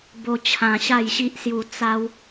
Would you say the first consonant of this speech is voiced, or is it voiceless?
voiced